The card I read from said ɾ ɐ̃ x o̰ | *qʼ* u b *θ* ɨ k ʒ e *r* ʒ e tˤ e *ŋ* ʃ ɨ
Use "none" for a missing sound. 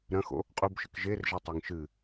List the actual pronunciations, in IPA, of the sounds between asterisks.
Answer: qʼ, ʃ, r, ŋ

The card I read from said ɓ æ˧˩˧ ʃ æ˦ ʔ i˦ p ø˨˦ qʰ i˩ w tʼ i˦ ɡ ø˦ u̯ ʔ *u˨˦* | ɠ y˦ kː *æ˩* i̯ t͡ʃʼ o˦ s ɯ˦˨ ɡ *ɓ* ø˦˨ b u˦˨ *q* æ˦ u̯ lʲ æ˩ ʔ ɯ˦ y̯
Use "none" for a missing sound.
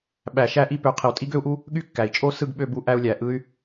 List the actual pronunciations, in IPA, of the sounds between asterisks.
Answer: u˦, æ˩, ɓ, ʔ

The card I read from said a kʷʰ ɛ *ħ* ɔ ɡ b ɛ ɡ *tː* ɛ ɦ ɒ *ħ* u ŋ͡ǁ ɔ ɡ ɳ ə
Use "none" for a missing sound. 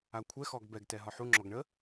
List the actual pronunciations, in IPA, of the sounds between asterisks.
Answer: x, t, ħ

